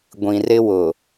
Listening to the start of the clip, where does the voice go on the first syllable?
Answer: low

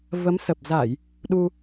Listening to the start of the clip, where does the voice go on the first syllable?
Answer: rising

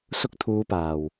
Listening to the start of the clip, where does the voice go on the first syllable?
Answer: high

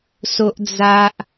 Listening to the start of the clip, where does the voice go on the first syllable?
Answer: high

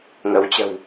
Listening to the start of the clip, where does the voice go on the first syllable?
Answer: rising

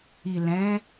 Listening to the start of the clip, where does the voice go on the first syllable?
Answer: low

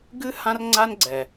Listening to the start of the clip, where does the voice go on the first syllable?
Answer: high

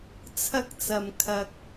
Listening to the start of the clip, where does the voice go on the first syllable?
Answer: high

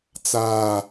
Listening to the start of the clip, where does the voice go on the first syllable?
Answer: high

